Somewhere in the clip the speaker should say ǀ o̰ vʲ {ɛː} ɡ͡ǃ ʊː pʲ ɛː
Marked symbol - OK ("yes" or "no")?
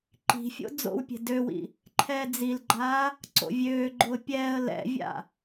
no